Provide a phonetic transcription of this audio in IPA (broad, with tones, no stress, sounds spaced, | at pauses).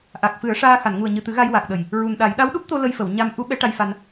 ʔ a˨˩ k̚ f ɨ˨˩˦ ə̯ ʂ aː˧ x a˨˩˨ n ŋ u˨˩ ə̯ ɲ ɨ˨˩ t̪ ɨ˨˩˦ ɣ a˧ j w a˨˩ k̚ ɗ ə˨˩ j | ɹ u˨˩ n ɗ a˨˩˦ j ɗ a˧˥ w ɗ u˦˥ p̚ t̪ o˧ l ə˧ j f ə˨˩˨ w ɲ a˧ m ʔ u˧˥ ɓ ɛ˧˥ ʈ a˧ j f a˧ n